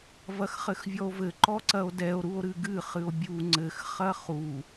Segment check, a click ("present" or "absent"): present